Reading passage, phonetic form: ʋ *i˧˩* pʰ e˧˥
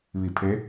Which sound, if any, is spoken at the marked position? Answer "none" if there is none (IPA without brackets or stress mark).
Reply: i˧˩